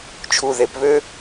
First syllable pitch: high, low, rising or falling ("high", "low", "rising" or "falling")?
low